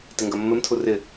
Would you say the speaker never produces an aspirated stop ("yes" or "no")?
no